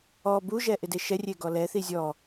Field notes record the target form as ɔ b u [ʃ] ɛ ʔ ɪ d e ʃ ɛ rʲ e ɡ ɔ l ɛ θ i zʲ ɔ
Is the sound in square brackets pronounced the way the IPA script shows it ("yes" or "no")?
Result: no